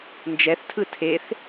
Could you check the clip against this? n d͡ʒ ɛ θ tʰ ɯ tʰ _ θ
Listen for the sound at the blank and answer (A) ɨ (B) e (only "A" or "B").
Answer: B